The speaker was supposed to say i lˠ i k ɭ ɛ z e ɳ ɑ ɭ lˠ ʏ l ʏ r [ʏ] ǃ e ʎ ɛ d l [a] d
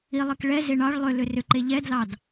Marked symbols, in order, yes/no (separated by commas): yes, no